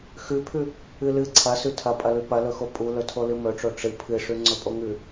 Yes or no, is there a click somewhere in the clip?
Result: yes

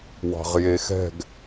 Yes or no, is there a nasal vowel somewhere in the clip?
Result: no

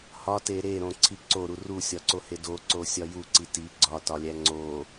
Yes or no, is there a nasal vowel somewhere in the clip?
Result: yes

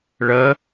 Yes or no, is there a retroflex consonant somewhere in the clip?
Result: yes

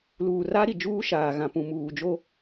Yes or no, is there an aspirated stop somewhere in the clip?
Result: no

